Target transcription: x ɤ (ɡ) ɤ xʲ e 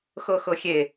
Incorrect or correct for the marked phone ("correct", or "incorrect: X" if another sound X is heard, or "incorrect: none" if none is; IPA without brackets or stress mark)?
incorrect: x